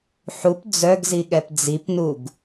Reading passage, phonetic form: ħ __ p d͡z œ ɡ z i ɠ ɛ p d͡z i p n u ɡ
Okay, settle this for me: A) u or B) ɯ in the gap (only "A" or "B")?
A